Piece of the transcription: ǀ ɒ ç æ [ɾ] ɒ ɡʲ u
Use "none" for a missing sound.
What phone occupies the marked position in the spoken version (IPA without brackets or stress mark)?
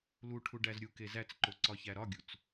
ɾ